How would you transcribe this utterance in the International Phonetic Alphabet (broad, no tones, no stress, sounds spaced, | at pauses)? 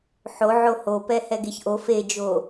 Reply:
ħ o ʕ o h o p ɛ h ɛ ɡ e ç ʔ o f e d͡ʒ o